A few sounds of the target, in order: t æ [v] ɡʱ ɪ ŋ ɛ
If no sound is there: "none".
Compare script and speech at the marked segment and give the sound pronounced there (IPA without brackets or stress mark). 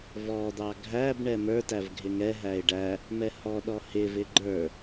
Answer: v